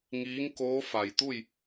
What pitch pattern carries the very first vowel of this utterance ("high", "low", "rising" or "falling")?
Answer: rising